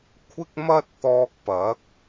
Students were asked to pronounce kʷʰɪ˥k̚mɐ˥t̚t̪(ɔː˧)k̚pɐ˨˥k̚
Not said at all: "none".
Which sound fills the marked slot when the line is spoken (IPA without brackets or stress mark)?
ɔː˧